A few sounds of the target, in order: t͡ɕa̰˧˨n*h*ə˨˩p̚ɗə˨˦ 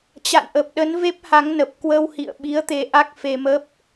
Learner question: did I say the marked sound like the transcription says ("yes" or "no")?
no